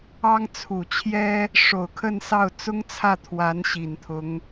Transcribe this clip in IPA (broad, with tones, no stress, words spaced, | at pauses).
ɑ˥ŋt͡sʰu˨˩t͡ɕʰjɛ˥ | ʂo˨˩ʊ̯kʰə˥˧nsɑ˥˩ʊ̯ t͡sʊ˥ŋt͡sʰä˥˩t̪ʰwa˧˥n ɕi˨˩nt̪ʰʊ˧˥ŋ